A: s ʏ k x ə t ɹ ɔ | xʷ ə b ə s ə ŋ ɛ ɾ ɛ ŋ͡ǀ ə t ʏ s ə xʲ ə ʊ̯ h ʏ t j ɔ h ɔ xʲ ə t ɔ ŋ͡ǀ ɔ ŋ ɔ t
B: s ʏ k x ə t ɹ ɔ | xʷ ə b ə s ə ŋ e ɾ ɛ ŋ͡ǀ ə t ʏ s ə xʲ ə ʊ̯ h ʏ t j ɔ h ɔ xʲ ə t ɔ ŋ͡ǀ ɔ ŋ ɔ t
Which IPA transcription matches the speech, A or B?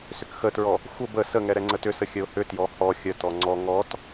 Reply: A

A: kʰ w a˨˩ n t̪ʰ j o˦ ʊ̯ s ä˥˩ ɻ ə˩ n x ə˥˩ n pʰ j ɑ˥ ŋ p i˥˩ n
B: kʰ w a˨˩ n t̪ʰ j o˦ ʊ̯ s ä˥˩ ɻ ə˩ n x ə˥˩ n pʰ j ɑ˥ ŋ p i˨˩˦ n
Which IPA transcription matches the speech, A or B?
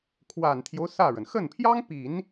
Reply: B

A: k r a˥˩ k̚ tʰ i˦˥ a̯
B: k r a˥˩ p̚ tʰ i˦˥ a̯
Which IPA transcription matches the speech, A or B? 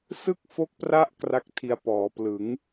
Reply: A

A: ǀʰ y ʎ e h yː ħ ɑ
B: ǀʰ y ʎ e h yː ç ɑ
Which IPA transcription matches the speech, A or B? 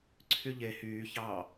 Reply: B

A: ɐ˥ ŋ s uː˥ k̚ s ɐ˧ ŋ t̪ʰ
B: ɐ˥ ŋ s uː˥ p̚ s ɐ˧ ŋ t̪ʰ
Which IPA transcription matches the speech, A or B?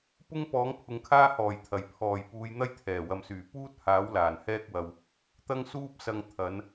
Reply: B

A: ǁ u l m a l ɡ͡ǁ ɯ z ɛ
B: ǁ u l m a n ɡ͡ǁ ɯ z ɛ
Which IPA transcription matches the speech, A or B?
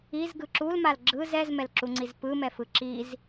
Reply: A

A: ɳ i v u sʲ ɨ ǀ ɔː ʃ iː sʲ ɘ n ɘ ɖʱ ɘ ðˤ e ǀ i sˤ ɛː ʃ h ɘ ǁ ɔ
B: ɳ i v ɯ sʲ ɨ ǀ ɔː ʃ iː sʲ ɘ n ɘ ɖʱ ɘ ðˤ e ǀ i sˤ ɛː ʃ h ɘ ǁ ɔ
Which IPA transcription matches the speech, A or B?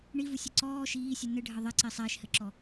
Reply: A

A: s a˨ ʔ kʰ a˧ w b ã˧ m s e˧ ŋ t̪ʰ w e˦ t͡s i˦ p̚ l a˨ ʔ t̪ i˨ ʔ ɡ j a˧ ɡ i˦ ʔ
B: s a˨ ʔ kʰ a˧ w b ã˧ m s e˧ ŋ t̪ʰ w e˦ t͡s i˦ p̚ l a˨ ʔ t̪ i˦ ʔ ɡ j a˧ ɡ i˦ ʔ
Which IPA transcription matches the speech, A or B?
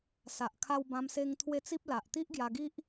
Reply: B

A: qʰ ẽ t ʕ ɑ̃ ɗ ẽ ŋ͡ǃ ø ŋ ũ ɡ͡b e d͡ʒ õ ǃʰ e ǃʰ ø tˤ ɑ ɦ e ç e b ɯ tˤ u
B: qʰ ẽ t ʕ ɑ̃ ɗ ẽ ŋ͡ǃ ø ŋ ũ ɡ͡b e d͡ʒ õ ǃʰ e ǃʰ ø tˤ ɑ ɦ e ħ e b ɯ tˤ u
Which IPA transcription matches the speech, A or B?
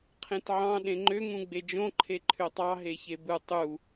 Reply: A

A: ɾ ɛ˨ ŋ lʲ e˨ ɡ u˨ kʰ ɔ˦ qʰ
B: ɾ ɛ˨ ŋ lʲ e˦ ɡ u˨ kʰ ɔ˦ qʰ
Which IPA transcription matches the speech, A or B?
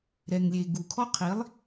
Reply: A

